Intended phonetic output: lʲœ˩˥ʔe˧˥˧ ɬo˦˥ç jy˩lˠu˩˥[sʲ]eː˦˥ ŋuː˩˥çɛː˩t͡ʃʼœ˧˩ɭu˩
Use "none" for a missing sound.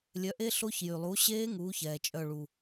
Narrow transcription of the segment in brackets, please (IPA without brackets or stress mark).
ɕ